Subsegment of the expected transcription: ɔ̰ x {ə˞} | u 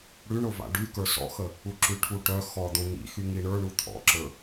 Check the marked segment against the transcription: incorrect: ə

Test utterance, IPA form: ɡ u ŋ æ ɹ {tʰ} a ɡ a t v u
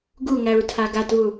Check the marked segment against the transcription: correct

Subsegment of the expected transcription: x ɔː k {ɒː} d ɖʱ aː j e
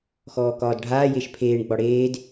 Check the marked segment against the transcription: correct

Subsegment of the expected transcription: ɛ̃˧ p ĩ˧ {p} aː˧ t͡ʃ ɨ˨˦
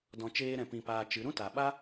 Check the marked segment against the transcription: correct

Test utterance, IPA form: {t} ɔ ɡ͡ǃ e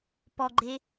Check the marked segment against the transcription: incorrect: p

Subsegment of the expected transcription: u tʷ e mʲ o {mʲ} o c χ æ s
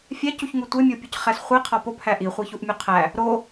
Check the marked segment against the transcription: incorrect: pʲ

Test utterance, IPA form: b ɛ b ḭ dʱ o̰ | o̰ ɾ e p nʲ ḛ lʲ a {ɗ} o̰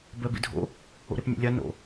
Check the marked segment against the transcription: incorrect: n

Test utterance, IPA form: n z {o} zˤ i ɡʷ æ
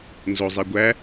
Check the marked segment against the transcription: correct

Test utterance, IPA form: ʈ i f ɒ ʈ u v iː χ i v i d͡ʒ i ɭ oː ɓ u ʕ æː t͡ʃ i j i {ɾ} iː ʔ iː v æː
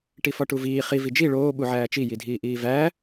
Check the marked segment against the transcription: incorrect: dʱ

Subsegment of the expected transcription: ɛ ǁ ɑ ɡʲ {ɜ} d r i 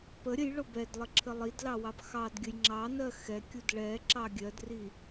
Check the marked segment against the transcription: correct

